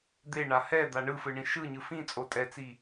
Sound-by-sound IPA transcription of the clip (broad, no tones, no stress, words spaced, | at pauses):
d̪eɳa hɛd̪a ɳɯfɯɳĩ ʃɯɲɯ fĩt͡sʼo tʼɛt͡si